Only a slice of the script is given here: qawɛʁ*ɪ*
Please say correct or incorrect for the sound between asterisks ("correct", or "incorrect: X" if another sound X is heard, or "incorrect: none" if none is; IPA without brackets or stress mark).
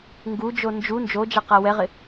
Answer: correct